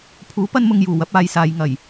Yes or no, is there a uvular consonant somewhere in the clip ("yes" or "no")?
no